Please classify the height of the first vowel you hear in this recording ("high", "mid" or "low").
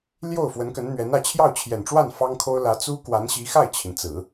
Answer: mid